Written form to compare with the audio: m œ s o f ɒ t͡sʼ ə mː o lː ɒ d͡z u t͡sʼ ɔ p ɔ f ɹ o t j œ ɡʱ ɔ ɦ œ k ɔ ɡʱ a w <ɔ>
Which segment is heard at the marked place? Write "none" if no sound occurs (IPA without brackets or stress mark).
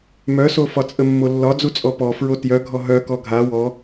ɔ